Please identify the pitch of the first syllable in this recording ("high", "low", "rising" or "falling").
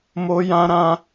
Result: high